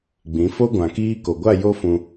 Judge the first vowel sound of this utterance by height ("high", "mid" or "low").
high